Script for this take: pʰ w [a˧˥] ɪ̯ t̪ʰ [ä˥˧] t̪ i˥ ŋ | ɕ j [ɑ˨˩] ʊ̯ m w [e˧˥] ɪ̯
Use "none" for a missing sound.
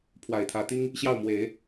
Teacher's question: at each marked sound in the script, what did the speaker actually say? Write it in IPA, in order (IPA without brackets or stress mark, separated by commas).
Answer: a˨˩, ä˧˥, ɑ˥˩, e˨˩˦